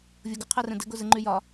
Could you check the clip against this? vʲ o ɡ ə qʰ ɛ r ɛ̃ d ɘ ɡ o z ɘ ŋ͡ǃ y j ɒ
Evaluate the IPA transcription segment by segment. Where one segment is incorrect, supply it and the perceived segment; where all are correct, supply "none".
none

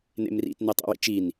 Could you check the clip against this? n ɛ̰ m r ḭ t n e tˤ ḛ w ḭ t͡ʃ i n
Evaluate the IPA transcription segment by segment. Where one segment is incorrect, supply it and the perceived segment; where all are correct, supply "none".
ɛ̰ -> ḛ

